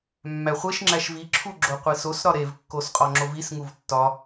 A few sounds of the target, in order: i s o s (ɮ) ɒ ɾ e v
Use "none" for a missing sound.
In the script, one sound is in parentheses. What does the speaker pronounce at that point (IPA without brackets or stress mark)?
ɾ